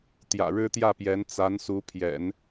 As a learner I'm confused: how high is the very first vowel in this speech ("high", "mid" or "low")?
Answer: low